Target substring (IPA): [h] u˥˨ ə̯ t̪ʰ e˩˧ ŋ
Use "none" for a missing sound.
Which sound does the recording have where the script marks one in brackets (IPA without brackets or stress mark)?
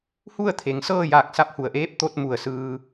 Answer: h